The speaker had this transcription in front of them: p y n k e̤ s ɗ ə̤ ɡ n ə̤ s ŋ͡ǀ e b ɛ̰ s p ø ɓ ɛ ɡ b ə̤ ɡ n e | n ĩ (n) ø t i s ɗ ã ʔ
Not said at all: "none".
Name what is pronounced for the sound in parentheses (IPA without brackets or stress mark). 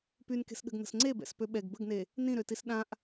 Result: ɾ